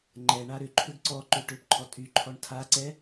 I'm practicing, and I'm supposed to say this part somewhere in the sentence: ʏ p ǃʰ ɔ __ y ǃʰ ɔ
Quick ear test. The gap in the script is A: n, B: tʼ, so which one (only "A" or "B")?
B